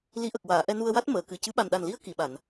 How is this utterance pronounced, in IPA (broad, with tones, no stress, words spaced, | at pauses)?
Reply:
li˧˥ʔə˨˩k̚ waː˨˩˨ʔɛ˧nu˧ə̯wa˦˥t̚ məː˨˩˨ kɨ˨˩cɨ˧˥ ɓa˨˩nɗa˨˩nli˧˥ə̯ ki˨˩˨ɓa˨˩˨n